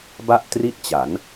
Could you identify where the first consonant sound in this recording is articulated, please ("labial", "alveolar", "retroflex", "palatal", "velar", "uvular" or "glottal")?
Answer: labial